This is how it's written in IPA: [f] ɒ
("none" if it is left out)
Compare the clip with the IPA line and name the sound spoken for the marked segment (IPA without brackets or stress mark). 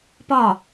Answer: p